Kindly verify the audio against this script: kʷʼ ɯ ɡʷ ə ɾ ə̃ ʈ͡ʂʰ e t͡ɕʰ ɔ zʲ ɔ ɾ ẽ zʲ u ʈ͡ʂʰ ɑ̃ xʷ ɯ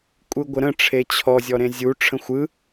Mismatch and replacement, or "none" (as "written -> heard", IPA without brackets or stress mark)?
ɑ̃ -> ə̃